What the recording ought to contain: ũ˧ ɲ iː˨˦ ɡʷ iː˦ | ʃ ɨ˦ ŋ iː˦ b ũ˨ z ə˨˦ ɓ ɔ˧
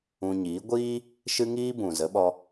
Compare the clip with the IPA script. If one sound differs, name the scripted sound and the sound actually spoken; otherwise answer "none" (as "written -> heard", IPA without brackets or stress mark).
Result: none